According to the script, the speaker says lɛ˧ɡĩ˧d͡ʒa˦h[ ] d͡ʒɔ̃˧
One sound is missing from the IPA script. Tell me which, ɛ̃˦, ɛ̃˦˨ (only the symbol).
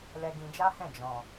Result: ɛ̃˦˨